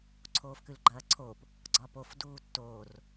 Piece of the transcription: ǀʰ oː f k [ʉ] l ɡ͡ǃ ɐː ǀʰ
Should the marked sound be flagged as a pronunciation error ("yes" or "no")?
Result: no